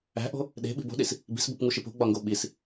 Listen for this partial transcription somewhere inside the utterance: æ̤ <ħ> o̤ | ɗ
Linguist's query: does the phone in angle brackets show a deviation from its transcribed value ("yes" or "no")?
yes